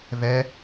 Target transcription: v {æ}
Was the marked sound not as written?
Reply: yes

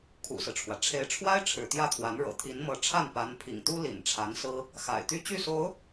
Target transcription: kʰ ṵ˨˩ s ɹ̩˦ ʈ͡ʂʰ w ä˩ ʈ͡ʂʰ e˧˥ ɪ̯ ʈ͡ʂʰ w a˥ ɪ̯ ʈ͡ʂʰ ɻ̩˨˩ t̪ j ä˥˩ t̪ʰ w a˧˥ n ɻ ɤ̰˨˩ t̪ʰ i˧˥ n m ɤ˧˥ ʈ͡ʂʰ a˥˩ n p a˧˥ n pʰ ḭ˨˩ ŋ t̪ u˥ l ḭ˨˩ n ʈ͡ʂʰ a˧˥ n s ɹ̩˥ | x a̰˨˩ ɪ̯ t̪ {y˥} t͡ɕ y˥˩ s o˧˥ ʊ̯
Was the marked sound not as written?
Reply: no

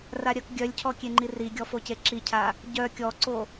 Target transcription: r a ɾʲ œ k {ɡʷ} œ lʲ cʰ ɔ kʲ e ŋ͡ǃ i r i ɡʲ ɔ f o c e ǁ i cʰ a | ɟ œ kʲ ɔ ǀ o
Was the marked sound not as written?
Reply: yes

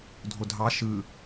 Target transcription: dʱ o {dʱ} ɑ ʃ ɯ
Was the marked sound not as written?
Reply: no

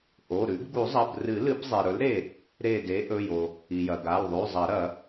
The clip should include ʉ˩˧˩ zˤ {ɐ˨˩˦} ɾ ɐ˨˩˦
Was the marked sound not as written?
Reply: no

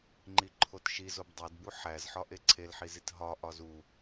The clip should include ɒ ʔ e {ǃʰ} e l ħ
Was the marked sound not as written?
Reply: yes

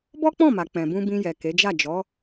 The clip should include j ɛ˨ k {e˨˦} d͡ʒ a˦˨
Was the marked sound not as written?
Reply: no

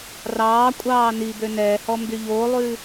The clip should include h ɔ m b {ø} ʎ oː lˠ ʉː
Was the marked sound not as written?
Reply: yes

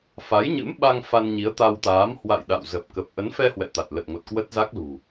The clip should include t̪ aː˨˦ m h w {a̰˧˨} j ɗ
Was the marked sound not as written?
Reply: no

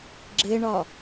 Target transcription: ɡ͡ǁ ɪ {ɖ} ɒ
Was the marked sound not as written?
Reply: yes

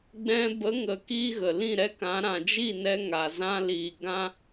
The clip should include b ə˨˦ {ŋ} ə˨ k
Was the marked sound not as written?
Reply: no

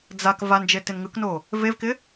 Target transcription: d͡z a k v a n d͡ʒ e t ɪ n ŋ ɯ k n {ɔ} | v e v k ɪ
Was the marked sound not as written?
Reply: yes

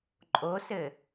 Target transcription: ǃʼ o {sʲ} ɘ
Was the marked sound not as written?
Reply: yes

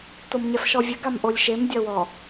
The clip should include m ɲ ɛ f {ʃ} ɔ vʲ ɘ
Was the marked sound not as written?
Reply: no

